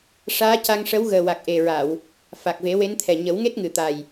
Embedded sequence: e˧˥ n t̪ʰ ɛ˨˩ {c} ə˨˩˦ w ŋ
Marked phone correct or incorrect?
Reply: incorrect